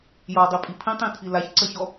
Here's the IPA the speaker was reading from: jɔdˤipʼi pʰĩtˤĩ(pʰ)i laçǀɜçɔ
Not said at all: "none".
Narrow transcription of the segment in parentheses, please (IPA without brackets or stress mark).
tʰ